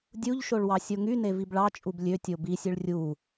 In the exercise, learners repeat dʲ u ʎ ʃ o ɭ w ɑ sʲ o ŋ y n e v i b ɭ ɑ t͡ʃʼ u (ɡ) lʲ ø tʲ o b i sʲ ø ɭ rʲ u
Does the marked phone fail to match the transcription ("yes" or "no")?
yes